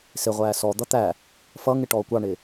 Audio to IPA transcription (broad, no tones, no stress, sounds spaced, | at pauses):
s ɪ ʁʷ æː s ɔ d̪ ʌ t̪ æ | f ʌ ŋ ɪ ʈ ɔː kʷ ɑ ɳ ɪ